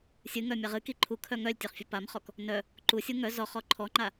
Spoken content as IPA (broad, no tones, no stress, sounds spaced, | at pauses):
sʲ ɨ ŋ œ mʲ a ʁ ɨ k i ǃʰ u kʰ œ ŋ œ lʲ tʲ œ χ fʲ œ p a m χ ɔ k | n œ | ǃ u sʲ u ŋ œ z ɔ χ ɔ ǃʰ ɔ ŋ͡ǃ a